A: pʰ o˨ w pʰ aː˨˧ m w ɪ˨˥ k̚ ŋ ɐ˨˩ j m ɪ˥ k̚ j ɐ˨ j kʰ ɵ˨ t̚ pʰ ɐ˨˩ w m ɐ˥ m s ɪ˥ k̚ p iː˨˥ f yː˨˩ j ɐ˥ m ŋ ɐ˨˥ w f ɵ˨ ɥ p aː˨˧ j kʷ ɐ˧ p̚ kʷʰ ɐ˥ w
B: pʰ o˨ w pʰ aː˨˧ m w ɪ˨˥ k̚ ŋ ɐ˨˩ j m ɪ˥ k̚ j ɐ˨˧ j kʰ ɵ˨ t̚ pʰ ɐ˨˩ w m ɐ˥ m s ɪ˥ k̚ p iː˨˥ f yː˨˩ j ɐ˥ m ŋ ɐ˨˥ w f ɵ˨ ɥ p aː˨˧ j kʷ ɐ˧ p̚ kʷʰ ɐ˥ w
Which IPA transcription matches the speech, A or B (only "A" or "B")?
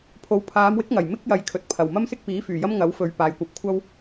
B